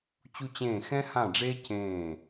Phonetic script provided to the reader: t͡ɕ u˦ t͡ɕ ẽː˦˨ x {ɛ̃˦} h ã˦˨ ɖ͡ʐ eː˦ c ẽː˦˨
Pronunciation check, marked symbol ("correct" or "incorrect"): correct